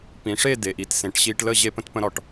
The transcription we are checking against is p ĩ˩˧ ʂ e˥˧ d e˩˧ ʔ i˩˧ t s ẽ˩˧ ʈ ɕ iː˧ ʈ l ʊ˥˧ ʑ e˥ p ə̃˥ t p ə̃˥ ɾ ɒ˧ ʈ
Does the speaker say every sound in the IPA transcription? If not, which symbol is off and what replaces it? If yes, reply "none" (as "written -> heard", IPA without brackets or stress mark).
ʊ˥˧ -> ə˥˧